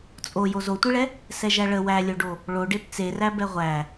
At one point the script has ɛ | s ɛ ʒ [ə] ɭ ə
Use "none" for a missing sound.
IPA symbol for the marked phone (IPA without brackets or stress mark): æ